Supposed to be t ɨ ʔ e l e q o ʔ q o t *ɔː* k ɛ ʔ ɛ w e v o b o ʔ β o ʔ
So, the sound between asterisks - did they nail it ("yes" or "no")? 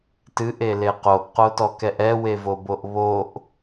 no